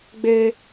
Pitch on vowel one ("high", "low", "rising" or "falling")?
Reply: low